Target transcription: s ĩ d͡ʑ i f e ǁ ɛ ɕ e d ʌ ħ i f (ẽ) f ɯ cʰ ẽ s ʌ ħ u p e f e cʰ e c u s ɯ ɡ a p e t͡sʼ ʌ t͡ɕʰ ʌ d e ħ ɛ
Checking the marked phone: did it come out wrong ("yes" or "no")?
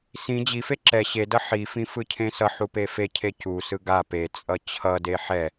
yes